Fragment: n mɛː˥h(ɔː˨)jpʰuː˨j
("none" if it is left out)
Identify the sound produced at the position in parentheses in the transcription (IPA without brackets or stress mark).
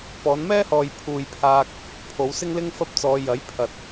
ɔː˨